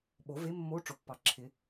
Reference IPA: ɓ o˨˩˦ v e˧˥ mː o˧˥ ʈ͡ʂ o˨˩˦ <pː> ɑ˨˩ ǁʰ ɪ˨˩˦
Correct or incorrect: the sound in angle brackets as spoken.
correct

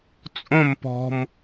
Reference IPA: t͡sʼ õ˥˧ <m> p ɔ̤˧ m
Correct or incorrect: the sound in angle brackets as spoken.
correct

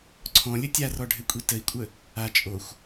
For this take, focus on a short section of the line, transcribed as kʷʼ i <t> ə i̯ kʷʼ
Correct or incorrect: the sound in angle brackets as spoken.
correct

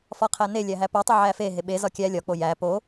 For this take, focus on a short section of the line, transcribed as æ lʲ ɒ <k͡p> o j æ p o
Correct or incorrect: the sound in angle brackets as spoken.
correct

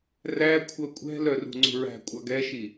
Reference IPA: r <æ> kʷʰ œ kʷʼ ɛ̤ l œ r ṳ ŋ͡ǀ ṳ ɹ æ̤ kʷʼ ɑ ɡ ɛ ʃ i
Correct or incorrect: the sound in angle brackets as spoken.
correct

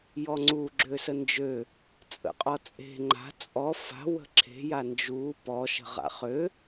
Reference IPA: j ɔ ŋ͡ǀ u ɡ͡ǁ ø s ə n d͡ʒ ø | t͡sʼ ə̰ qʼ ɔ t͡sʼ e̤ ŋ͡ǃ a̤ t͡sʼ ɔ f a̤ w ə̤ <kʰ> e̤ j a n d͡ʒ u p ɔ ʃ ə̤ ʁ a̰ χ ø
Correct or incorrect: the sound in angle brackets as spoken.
incorrect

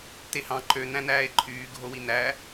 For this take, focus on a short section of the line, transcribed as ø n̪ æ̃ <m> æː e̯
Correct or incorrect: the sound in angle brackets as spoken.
incorrect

